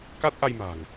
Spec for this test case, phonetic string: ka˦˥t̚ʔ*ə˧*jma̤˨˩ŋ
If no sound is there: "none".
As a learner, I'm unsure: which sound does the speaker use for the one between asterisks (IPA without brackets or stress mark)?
a˧